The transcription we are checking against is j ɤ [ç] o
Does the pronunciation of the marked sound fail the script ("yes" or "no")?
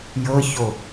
no